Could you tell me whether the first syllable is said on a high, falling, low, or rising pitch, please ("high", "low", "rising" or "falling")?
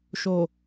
low